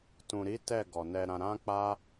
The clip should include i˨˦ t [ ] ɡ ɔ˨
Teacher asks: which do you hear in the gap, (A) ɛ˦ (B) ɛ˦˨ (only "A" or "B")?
B